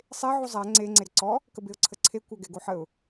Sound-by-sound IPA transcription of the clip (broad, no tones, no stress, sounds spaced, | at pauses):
sˤ e ʕ u zˤ æ ŋ͡ǀ e ŋ͡ǀ e ɾ ə ǀ ɔ | k ə b e ʊ̯ ǀʰ ə ǀʰ e kʷ æ ɡ ɛ ɡ o ħ ə ʊ̯